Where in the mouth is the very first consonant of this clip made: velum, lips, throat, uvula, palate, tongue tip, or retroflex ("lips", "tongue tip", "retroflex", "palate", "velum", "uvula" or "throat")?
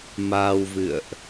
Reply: lips